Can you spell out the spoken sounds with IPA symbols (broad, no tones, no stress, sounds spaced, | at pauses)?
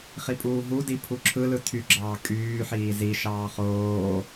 χ i pʼ uː ɦ u d i pʰ u ǁʰ ɯ l ɯ tʰ y ɡ͡ǁ ɑː kʼ yː ħ iː z i ʃ ɑː χ oː